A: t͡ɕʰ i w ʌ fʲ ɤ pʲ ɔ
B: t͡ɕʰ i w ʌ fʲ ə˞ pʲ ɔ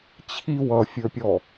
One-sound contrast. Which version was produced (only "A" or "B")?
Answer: B